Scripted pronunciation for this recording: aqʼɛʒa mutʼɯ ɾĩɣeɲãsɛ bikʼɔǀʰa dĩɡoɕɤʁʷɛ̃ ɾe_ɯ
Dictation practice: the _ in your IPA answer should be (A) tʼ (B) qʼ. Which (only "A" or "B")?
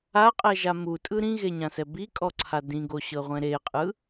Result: B